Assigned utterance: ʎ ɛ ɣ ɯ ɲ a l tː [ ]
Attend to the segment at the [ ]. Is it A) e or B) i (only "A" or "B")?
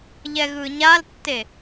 A